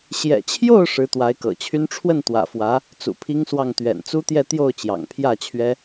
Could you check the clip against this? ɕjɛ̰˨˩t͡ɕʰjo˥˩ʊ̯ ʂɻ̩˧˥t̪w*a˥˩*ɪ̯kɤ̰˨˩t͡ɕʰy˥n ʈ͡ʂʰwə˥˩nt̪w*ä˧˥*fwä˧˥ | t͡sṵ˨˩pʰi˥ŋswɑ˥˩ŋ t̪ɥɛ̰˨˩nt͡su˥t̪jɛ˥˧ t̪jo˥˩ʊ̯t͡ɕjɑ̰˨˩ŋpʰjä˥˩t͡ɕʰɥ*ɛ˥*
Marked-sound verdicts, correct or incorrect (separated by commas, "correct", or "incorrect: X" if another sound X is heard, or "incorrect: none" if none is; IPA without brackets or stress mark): incorrect: a˧˥, incorrect: ä̰˨˩, correct